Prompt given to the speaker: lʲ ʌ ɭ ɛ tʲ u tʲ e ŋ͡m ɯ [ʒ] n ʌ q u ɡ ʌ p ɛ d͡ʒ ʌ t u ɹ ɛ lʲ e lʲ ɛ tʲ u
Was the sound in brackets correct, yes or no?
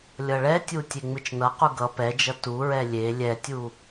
no